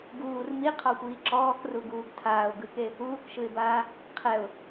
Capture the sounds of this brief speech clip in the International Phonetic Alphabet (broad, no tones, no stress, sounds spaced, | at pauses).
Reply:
ɡ uː r m i qʰ ɔ xʷ iː ǁ ɔː k r u ɡ uː ɡ tʰ aː ʊ̯ ɡ ɯ k e | uː k ʃ ɯ ɪ̯ b aː | qʰ ɛ ʊ̯